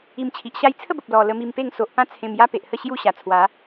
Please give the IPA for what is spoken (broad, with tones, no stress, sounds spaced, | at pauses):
i˧ m t͡ɕʰ i˨ ʔ ɕ a˧ j t͡sʰ ə˥˧ b ə˨ p̚ l ɔ˧ l ə˧ m i˧ m p e˥˧ ŋ s o˨ ʔ p ã˦ t͡sʰ ẽ˧ m j a˦ p e˨ ʔ h ə˥˧ ɕ j u˥˧ ɕ a˨˩ t͡sʰ w a˨˦